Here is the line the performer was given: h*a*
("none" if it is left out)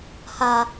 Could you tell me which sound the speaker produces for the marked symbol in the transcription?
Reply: a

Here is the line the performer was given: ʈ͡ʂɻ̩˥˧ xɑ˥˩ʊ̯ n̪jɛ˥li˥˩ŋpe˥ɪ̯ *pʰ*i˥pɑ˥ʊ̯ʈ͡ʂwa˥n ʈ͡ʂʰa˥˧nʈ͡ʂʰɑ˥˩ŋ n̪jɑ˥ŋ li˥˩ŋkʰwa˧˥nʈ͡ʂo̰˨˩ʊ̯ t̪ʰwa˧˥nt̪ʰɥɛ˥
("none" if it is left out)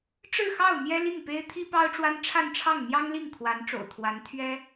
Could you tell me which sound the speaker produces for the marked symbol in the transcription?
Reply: t̪ʰ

